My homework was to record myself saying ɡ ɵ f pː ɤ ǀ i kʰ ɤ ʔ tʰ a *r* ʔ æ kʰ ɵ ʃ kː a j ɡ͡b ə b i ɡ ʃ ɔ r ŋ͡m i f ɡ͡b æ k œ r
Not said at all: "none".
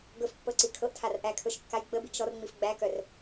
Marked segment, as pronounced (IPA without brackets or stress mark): r